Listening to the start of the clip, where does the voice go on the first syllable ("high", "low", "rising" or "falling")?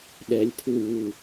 rising